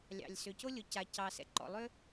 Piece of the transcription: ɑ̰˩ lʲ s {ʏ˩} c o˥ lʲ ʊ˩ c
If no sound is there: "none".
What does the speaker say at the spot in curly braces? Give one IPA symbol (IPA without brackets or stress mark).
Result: ʏ˩